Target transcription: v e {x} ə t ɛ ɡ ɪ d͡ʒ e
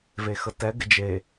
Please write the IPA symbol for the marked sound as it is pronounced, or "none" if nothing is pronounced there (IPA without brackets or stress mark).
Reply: x